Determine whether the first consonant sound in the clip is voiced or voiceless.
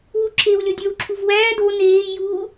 voiced